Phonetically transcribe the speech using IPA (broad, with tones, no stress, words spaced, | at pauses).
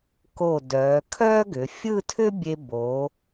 ko˧˩dœː˩˧kʰœː˥ ɡʏ˩˧fʲɯ˥˧tʰʏ˥ bʲe˧bo˩˧